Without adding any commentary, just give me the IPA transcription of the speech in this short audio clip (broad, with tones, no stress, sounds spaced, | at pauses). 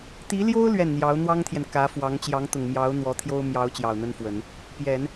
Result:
t̪ i˧˥ l j o˥ ʊ̯ l ɥ ɛ˥˩ n n̪ j ɑ˧˥ ʊ̯ n̪ w ɑ˥ ŋ t̪ʰ j ɛ˨ n k ä˧˥ f w ɑ˧˥ ŋ t͡ɕ j ɑ˧˥ ŋ t̪ ʊ˨˩ ŋ m j ɑ˧˥ ʊ̯ n̪ w ɔ˧˥ t̪ʰ j o˥ ʊ̯ m j ɑ˧˥ ʊ̯ t͡ɕ j ɑ˨˩ ʊ̯ n̪ ə˥ n f w ə˨˩˦ n | p j ɛ˨˩˦ n